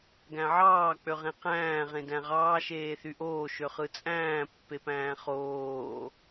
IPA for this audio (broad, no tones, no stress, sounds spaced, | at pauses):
ɡ æ̃ ʕ ɑː k͡p ø ʁ ẽ q æ̃ː ʁ ẽ d æ̃ ʁ ɑː ʃ eː θ y ʔ oː ʃ ø χ ɯ t͡sʼ æ̃ː pː e p æ̃ː χ oː